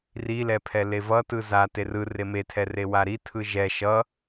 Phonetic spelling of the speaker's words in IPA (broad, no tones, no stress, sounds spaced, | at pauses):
r i l ɛ pʰ ɛ l e v ʌ t ɯ z a t e r ɯ r e m e tʰ ɛ r e w a ɾ i tʰ ɯ ʒ ɛ ʃ ʌ